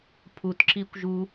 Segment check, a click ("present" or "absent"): present